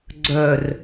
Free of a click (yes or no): no